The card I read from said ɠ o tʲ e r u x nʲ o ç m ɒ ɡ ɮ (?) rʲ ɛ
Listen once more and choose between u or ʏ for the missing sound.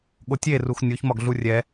u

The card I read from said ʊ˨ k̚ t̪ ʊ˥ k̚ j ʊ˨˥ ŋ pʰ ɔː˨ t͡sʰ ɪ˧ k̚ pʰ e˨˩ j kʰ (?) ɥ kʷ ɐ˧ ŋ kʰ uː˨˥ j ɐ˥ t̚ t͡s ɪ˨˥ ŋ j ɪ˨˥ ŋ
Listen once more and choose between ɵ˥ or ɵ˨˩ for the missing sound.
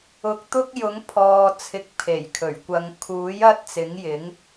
ɵ˨˩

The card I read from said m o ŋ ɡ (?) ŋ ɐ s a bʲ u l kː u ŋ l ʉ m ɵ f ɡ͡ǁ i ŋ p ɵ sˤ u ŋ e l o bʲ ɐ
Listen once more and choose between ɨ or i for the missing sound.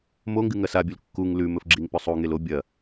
ɨ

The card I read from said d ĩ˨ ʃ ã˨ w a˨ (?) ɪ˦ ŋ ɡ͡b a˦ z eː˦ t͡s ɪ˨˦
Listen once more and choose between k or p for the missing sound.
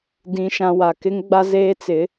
k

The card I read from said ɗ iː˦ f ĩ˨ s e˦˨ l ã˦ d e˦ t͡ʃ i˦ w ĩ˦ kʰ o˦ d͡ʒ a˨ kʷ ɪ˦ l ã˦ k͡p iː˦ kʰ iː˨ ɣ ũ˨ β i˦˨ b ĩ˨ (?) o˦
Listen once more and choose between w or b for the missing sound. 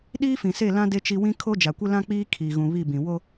w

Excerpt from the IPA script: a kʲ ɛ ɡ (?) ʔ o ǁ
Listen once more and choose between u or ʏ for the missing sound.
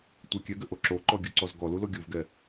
ʏ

